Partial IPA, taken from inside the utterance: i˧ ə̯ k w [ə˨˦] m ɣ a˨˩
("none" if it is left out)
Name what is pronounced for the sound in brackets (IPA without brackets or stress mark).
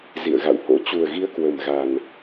ə˨˩